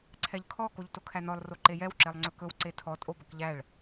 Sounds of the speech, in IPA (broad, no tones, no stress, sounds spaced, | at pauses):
ǀʰ ɛ ʎ kʰ ɔ k o ʎ t o kʰ æ n ɔ lˠ r o ǃ e j ɛ w ǁ e lˠ ŋ͡ǀ ɵ k ɵ w ǀ e tʰ ɔ tʼ o b ɵ k ʎ æ ɭ